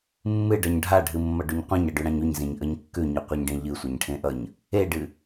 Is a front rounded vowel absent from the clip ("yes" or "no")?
yes